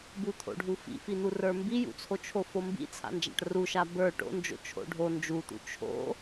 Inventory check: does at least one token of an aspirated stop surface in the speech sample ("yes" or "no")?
yes